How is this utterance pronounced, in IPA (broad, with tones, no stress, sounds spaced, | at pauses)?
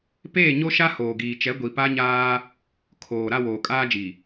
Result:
p eː˦˨ ɲ o˦ ʃ a˦ h oː˨ ɡ iː˨ t͡ʃ ɛ˨˦ ɡʷ i˨ p a˦ ɲ aː˦ | kʰ oː˨ ɾ a˦˨ w oː˨ kʼ aː˦ d͡ʒ i˨